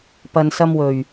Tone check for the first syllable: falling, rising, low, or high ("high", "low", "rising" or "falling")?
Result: low